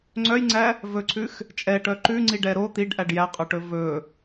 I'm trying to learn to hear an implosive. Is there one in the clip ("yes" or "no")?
no